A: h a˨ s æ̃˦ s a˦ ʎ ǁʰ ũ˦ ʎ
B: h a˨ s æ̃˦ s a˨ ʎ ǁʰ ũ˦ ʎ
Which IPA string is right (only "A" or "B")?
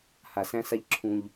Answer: A